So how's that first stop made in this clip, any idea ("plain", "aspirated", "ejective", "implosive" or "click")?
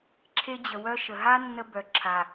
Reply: click